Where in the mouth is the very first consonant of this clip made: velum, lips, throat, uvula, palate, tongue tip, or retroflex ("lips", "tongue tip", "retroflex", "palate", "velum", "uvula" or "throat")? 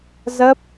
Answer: tongue tip